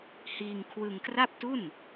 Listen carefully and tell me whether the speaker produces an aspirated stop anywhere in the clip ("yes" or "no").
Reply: yes